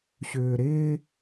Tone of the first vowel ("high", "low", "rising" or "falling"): low